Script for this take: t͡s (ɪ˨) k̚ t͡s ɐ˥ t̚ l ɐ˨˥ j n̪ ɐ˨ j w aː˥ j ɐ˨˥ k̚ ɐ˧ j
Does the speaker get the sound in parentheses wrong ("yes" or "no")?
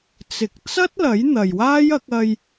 no